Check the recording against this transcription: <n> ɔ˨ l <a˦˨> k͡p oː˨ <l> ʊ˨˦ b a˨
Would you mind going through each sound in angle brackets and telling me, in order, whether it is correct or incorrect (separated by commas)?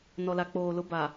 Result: correct, incorrect, correct